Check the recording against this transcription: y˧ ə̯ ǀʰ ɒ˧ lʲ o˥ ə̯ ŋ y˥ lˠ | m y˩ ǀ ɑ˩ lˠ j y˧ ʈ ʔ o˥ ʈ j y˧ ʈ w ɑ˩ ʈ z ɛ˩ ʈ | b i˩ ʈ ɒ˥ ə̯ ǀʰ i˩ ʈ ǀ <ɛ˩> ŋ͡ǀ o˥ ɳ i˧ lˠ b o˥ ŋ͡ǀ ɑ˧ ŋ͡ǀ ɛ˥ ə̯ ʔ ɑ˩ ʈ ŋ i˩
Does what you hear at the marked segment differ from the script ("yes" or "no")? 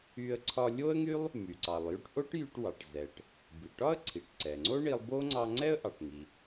no